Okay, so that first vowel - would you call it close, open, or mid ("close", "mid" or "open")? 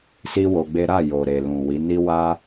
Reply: close